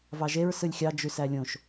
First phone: v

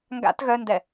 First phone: ŋ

